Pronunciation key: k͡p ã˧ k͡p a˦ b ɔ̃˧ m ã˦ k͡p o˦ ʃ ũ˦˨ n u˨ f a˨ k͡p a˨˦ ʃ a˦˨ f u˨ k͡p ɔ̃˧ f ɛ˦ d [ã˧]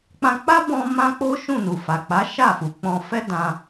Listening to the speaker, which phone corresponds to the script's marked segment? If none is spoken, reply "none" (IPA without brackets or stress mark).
ã˧